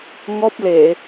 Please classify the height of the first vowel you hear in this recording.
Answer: mid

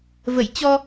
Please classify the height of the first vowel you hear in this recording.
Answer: mid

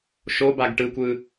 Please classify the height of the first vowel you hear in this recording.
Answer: mid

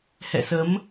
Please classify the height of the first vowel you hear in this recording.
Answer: mid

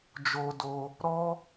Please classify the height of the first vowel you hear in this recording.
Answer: mid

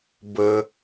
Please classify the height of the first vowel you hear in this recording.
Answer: mid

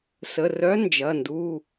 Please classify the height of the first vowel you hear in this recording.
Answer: mid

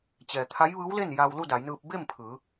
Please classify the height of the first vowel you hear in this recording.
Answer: mid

